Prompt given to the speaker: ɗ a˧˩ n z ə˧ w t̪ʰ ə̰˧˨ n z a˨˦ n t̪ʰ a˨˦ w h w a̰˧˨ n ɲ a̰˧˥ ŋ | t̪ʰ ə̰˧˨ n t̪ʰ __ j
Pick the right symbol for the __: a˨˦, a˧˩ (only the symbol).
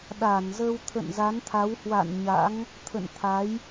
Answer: a˨˦